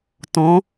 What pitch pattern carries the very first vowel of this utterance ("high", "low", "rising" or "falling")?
rising